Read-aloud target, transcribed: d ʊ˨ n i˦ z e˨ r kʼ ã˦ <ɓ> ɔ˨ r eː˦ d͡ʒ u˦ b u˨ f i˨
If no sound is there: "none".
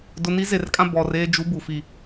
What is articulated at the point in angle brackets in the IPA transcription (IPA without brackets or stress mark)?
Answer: b